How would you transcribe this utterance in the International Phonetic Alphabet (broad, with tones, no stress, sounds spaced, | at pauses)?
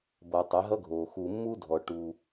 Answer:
b ʌː˨ tˤ ɛ˨˦ ɦ ʌ˦ ɡʱ oː˨ x u˨ mː u˦ dʱ ɔ˨ ʈ u˦